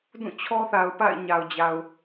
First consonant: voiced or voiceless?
voiced